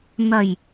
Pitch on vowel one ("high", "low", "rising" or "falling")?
low